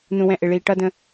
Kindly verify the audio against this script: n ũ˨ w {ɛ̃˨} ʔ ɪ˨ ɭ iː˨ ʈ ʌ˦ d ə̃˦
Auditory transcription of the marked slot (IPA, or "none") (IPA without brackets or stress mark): ɛ̃˨